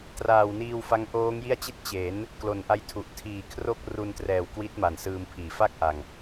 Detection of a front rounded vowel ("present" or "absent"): absent